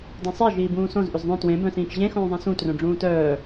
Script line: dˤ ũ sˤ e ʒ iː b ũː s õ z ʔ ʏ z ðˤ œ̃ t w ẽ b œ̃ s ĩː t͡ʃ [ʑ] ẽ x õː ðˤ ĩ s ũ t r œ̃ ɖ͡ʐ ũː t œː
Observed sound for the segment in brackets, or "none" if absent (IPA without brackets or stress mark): ʑ